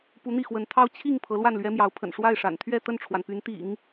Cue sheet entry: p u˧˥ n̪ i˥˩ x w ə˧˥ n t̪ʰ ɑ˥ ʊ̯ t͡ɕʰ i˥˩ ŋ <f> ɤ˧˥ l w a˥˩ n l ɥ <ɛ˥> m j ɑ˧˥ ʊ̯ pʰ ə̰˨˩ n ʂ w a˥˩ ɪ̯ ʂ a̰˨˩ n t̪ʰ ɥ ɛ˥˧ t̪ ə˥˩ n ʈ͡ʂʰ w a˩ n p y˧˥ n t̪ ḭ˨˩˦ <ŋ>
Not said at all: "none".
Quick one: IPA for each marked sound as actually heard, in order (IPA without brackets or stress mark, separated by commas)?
pʰ, ɛ˥, ŋ